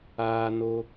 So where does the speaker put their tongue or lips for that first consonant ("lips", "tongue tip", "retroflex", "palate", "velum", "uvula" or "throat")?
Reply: tongue tip